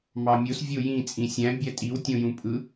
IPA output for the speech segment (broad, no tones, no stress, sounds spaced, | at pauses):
m ɑ mʲ o s vʲ o j ĩ t͡sʼ ĩ sʲ æ̃ bʲ æ tʼ i w tʲ õ j ũ pʼ ɯ